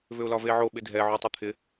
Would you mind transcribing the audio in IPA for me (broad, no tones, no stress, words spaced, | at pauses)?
vʏʊ̯lɒveʕo ɓɪdʱɛ ʕotˤʏt̪ʰɪ